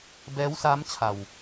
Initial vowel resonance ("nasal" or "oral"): oral